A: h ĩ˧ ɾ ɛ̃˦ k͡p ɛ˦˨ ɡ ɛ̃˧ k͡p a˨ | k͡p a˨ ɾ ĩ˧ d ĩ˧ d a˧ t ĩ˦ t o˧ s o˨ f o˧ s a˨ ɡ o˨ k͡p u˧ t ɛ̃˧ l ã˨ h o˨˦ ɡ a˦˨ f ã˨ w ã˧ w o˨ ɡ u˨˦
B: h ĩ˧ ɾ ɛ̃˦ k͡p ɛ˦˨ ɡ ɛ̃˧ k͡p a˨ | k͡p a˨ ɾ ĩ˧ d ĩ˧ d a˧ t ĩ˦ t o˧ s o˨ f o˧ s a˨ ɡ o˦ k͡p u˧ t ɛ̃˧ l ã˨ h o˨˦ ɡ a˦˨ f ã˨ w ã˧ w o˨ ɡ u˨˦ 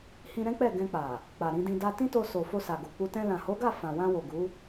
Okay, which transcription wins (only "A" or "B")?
A